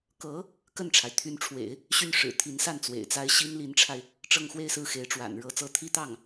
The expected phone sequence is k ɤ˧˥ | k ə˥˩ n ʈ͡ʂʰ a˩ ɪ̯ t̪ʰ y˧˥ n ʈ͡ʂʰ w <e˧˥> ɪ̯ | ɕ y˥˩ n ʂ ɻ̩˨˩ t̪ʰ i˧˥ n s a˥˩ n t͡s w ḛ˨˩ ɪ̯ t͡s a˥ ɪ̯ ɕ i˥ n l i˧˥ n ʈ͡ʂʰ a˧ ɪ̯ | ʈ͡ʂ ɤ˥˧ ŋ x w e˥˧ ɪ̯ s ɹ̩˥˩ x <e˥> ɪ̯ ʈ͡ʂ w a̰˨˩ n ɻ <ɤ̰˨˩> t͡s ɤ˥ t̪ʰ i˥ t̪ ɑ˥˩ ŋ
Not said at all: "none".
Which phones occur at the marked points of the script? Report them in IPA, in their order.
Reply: ḛ˨˩˦, e˧˥, ɤ˧˥

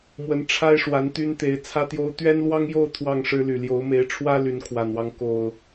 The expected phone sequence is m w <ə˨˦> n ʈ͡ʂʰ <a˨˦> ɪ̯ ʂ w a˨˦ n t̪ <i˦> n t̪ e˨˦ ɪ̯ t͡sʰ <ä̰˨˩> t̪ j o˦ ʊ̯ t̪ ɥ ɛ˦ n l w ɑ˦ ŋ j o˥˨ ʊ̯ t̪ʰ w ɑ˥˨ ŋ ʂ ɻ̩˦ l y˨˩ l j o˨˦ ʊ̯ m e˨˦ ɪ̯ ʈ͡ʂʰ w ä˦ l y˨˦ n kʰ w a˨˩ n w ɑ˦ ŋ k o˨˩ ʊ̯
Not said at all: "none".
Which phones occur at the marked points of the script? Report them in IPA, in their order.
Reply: ə˨˦, a˦, y˦, ä˦

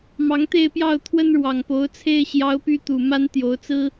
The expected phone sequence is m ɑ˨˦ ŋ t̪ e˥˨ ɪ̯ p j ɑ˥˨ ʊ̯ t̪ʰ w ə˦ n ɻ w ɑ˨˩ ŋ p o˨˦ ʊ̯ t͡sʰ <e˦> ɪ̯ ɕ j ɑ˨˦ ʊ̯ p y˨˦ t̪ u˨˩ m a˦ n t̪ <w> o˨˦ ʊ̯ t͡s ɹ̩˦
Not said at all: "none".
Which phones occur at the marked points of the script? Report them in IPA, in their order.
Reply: e˦, j

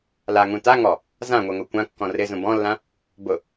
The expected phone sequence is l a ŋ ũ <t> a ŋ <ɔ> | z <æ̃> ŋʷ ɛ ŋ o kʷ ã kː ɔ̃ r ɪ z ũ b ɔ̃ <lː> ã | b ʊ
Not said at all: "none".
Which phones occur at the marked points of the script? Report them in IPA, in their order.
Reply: t, ɔ, ã, lː

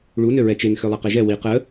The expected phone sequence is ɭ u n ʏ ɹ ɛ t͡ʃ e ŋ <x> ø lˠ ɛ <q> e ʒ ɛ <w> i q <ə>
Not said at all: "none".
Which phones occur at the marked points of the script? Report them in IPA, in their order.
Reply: x, q, w, ə

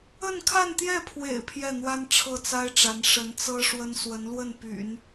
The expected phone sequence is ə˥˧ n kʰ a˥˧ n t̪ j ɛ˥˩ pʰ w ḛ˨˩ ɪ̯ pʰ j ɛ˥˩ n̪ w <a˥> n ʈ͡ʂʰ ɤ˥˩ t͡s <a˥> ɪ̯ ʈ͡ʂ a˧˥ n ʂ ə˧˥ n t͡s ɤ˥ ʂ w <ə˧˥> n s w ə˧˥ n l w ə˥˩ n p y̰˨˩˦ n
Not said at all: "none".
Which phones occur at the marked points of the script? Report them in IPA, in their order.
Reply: a˥, a˥, ə˥

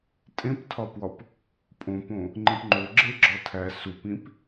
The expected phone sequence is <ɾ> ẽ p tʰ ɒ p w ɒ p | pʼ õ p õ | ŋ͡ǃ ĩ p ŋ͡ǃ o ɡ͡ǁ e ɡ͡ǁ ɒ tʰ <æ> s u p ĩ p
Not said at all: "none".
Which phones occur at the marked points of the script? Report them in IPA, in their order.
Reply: tʼ, æ

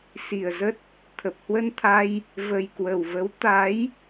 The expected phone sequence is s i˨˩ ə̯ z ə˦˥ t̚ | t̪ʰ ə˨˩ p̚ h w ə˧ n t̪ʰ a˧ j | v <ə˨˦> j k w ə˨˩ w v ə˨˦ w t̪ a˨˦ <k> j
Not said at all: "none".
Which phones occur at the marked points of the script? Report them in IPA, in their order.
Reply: ə˨˩, none

